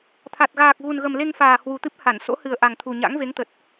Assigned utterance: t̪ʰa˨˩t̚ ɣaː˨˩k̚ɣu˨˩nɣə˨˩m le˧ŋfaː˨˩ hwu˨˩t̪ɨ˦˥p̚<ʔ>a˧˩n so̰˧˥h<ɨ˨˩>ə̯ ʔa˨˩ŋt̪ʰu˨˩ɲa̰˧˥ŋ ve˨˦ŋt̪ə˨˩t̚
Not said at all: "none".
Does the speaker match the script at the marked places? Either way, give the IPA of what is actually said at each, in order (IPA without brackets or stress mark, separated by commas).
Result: h, ɨ˨˩